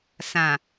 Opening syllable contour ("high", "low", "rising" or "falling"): low